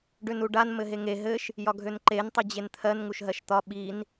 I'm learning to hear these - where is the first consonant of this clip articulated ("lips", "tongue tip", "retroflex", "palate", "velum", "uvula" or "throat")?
retroflex